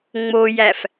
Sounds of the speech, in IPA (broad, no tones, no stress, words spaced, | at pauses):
ŋ͡mojæf